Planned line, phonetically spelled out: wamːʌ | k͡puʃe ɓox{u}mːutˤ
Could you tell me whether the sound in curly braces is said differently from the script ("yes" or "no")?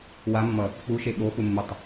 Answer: no